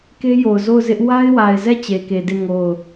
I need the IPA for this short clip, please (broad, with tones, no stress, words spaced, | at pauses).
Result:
ke˦jo˨ʊ̯zo˦˨ʊ̯ zɪ˦ʔ wa˦ɪ̯wa˨ɪ̯zɛ˦˨ t͡ɕe˨ke˨de˦˨ ŋo˦˨ʊ̯